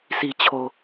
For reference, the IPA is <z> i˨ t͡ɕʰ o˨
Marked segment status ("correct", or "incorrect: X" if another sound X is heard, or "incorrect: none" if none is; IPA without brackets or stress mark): incorrect: s